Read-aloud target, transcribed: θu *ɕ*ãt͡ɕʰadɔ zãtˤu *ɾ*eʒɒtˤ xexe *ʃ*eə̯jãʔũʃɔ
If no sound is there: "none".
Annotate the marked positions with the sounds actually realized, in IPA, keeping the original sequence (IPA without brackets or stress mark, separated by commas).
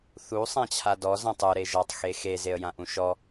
sˤ, ɾ, z